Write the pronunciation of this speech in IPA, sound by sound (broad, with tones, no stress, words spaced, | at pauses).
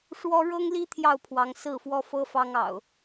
ʂwɔ˦ ɻɤ˦ŋli˦ t̪ʰjɑ˥˨ʊ̯pʰwɑ˨˦ŋsɹ̩˥˨fwɔ˦ fɤ˦fɑ˦ŋɑ̰˨˩ʊ̯